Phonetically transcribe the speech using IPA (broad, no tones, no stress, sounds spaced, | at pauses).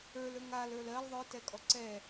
ə˞ l ə˞ ŋ a l ə˞ l ɜ l ðˤ ə˞ t ɛ kʼ ɔ ǀ ɛ